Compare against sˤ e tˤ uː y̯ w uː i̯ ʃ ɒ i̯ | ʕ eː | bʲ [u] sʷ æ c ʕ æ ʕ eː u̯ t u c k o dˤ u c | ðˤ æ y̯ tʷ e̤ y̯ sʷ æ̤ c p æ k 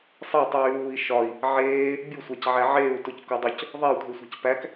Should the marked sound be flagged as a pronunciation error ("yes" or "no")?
no